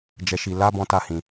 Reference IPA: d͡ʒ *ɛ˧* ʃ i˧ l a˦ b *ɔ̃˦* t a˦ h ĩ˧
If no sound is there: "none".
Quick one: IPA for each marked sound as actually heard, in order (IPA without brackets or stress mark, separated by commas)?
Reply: ɛ˧, ɔ̃˦